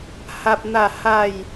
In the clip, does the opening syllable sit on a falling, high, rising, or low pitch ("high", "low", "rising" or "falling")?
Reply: high